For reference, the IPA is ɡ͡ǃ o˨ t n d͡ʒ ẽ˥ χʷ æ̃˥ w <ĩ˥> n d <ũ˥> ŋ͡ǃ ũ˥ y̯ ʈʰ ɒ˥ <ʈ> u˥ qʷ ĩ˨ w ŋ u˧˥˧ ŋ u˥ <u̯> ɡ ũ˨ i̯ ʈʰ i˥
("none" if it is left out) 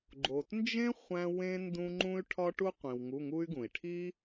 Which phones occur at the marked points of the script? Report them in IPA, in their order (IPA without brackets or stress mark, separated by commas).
ẽ˥, ũ˥, ʈ, y̯